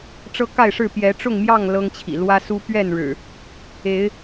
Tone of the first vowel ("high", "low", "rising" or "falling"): high